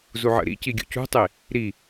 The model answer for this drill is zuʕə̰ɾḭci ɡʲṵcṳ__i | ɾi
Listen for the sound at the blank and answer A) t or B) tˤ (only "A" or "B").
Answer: B